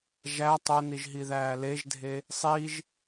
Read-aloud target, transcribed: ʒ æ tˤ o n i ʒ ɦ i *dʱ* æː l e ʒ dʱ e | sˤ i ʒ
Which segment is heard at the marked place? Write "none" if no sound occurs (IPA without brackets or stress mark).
ð